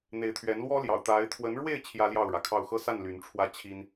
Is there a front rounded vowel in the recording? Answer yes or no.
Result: yes